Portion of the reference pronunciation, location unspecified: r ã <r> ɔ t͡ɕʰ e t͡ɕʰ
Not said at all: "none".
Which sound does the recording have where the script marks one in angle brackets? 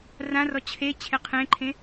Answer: r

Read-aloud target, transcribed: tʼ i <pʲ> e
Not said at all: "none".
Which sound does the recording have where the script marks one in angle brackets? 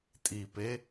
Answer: p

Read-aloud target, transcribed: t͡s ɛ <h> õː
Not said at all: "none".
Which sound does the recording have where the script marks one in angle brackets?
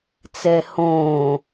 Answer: h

